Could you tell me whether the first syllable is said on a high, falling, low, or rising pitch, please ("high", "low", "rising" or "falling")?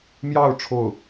falling